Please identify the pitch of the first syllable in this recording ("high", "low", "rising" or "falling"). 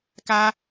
high